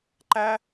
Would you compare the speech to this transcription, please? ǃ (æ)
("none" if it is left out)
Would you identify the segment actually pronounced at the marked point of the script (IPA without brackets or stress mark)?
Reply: æ